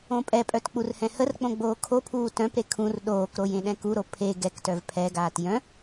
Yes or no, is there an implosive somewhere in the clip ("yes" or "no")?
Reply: yes